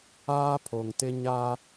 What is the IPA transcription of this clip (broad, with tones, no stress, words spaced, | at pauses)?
aː˦pʰo˨ŋtɪ˦ ɲa˦